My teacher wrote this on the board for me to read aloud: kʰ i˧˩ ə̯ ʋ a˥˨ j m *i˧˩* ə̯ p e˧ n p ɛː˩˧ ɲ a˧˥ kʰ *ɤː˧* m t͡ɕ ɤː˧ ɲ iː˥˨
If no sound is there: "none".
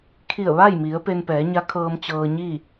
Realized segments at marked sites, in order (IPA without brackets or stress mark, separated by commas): i˩˧, ɤː˧